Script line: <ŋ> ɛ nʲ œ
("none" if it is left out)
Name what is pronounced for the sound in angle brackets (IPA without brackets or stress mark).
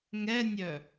ŋ